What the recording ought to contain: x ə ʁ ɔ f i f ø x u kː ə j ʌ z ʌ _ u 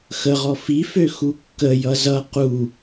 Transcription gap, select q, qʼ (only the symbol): q